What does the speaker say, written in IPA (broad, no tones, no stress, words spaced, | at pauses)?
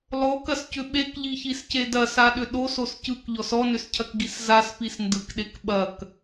lˠokɐscʏ ɓekʎiçisce dɐsaɗʏ ɗosos cɯkʎɔs ɔnʏscʰɐkɡis zaspis ndɯkɗek ɓɐk